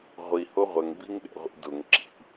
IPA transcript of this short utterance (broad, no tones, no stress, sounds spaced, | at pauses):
ʁʷ i h o ʁʷ ə ŋ b i ŋ ɗ ɛ̰ ʁʷ ḭ d ʊ ŋ ǁ ḭ